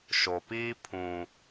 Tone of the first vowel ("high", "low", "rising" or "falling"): low